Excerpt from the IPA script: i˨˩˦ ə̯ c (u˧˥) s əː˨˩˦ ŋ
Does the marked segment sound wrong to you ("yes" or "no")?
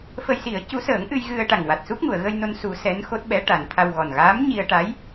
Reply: no